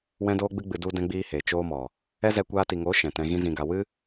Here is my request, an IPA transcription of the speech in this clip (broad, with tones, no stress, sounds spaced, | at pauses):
w ɛ̃˦ d oː˦ ɡ͡b ɨ˦ ɡ͡b ɨ˧ d u˦ d ɛ̃˦ ɡ͡b iː˦ h e˨ t͡ʃ oː˦ m ɔ˨ | ɛ˦ z ɛ˧ kʷ aː˧ t i˨ ŋ oː˨˦ ʃ ɛ̃˨ t ɛ̃˧ ɣ ĩ˦ z ĩ˧ ɡ a˧ w ɨ˦